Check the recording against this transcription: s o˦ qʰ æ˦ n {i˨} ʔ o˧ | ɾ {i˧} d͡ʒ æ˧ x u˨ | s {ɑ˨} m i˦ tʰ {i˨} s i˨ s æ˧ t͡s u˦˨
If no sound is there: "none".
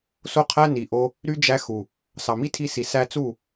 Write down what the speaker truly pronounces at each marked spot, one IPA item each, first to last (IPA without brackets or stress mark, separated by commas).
i˨, y˧, ɑ˨, i˧